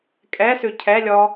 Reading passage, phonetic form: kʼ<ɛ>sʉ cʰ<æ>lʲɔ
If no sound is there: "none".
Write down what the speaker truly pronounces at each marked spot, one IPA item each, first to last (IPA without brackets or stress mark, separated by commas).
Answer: ɛ, ɛ